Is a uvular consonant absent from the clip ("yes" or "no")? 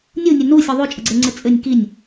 yes